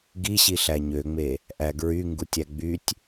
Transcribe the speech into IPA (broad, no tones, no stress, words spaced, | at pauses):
ɡiɕiɬæ ɲøŋ͡me | ʔæɡɹy ŋɡutʲæɡ͡bytʲ